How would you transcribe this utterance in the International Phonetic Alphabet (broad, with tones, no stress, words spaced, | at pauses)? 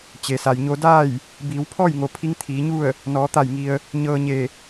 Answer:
t͡ɕe˩sa˩jɲo˧ daː˥˨j | biː˩˧wpʰɔː˥˨jŋo˩ pʰi˧˥ŋt̪ʰiː˩˧ɲu˥˨ə̯ | nɔː˩˧t̪a˧˩jŋi˩ə̯ | ɲɤː˧ɲe˧˩